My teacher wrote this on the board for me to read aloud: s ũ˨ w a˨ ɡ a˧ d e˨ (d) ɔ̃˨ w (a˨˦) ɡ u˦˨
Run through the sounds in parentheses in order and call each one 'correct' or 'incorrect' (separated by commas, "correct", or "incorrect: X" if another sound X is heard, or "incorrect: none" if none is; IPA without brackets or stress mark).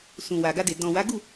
correct, correct